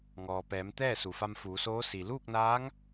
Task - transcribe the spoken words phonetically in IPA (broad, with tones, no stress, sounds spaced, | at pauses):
ŋ ɔː˩ p ɛː˩˧ m t̪ ɛː˥˨ s u˩ f a˧ m f uː˩˧ s oː˧˥ s i˩ l uː˥˨ k̚ n aː˧˥ ŋ